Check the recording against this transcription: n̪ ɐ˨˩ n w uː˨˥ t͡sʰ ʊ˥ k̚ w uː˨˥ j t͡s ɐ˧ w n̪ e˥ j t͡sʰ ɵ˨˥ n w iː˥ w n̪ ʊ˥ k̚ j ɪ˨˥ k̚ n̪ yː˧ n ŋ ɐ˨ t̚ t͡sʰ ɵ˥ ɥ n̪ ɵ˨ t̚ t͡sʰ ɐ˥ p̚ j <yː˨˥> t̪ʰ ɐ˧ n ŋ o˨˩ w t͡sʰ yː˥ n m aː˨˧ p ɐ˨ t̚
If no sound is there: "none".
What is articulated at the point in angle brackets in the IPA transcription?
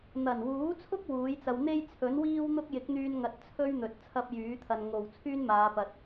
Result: yː˨˥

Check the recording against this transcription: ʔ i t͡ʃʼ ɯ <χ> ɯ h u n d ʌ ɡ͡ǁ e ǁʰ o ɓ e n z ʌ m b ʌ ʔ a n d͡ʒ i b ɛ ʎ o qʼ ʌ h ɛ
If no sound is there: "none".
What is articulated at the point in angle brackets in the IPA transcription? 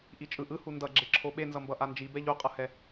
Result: ʔ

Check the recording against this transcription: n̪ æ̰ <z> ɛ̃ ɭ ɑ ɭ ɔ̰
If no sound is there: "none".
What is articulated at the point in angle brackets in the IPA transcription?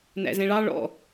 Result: z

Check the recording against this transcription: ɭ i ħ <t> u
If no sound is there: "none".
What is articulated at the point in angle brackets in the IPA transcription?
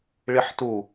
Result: t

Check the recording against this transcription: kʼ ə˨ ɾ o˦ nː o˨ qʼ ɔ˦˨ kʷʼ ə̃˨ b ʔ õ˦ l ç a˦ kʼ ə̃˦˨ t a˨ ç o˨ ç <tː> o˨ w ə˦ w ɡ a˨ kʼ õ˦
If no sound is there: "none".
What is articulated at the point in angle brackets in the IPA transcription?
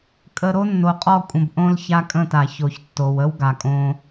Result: tː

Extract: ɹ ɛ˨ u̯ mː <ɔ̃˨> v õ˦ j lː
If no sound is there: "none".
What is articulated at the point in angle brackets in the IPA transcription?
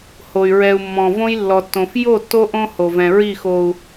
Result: ɔ̃˨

